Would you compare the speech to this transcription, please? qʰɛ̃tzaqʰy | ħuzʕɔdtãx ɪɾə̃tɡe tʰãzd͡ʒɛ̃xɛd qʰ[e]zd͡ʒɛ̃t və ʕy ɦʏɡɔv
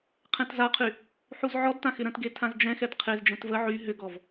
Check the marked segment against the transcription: correct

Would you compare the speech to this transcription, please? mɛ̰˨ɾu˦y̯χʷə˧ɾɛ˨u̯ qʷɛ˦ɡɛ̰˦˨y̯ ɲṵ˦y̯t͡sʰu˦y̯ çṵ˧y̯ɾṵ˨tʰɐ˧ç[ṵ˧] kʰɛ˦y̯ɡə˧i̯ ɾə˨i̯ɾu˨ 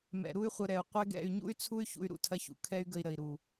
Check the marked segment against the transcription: incorrect: ṵ˨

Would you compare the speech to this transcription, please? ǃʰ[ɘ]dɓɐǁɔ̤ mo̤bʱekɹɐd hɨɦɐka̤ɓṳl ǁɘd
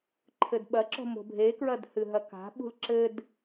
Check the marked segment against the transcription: correct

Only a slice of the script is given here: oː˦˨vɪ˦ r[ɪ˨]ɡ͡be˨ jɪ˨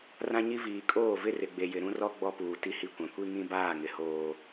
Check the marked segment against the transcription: correct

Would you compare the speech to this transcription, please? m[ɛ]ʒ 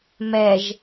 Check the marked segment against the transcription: correct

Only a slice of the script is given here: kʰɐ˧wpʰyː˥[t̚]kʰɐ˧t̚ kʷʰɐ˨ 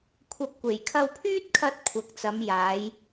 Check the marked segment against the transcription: correct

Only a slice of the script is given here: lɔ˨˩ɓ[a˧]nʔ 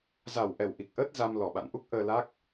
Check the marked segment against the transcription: incorrect: a̰˧˨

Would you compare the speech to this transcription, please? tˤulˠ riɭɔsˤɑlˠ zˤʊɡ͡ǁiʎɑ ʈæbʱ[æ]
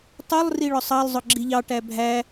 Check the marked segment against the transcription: correct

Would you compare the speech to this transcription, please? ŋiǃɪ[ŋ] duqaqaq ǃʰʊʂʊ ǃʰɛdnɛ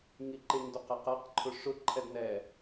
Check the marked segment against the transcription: correct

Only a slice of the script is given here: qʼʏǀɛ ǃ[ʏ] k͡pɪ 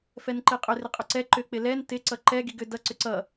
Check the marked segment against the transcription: correct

